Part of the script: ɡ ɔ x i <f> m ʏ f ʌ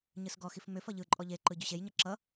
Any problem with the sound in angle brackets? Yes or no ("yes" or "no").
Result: no